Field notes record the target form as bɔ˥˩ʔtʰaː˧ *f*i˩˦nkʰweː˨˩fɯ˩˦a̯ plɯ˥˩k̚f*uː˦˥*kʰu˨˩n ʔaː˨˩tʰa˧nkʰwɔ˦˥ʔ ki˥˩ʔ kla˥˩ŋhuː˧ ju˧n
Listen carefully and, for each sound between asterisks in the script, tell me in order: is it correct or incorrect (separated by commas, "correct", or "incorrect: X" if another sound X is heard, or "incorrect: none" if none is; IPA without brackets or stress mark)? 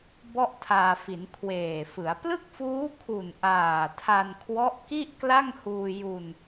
correct, correct